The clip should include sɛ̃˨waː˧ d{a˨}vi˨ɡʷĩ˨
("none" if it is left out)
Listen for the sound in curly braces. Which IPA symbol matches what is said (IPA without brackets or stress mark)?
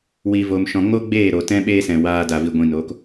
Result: a˨